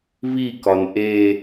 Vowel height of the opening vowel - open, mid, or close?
close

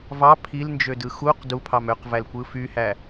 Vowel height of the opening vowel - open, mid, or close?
open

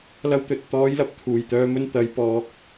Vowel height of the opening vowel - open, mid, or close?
open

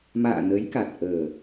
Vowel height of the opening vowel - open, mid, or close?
open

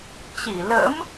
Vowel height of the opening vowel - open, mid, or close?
close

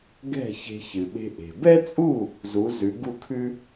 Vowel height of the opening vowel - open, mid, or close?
mid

